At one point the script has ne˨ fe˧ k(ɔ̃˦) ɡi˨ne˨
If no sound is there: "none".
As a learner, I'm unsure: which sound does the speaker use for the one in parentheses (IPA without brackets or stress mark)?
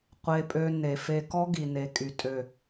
ɔ˦